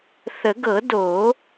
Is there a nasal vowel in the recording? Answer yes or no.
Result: no